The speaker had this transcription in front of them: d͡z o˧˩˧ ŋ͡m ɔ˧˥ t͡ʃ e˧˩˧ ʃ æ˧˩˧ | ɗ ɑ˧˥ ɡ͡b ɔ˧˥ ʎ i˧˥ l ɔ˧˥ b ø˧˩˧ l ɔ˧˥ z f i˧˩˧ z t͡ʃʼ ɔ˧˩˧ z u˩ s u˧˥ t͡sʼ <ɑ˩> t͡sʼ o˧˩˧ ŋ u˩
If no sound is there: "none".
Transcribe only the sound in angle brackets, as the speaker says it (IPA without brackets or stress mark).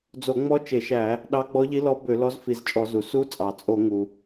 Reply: ɑ˩